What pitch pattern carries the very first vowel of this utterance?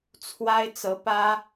high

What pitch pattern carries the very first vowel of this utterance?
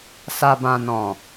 low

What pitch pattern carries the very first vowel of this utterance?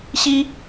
high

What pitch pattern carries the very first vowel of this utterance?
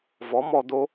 rising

